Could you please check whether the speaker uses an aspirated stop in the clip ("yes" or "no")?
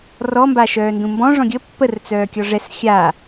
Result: no